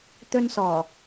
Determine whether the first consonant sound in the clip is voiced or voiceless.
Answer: voiceless